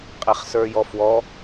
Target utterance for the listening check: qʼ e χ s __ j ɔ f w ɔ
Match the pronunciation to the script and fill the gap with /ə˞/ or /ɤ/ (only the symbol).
ə˞